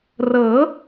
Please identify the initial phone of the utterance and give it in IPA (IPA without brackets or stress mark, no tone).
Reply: r